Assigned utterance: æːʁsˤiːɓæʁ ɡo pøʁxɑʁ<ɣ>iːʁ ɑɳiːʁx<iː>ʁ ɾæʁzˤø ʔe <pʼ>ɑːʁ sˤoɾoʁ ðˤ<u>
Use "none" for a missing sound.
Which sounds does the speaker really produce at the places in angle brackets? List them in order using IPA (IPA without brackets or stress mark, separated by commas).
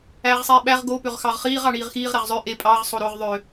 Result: χ, iː, pʼ, ø